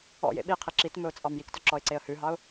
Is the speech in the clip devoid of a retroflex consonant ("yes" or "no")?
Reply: yes